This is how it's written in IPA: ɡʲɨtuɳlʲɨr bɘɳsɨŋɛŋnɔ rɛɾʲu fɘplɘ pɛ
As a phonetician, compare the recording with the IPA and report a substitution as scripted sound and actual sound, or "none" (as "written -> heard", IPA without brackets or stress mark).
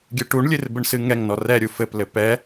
t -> ʈ